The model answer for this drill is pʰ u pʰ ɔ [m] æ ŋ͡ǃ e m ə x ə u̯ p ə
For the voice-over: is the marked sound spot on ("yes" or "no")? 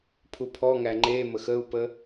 no